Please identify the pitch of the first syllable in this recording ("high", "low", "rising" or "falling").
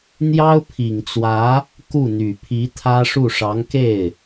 high